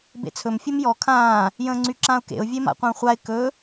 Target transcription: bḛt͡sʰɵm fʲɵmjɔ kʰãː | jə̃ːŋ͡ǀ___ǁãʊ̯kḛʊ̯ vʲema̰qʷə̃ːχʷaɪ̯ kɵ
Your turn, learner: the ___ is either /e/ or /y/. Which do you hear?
y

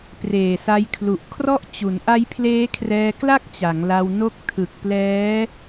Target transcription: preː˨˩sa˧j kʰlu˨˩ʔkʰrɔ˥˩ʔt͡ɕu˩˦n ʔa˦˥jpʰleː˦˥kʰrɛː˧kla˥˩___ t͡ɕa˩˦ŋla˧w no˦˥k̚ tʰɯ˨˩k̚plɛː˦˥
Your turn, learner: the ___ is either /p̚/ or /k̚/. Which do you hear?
k̚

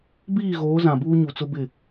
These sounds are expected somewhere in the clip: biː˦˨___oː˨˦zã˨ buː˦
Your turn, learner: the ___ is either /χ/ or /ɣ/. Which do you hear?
ɣ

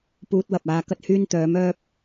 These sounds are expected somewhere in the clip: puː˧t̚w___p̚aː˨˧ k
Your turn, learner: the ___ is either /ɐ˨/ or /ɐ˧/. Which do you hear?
ɐ˨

